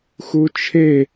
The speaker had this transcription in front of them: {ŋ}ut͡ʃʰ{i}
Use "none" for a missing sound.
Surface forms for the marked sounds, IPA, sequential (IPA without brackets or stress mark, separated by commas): x, e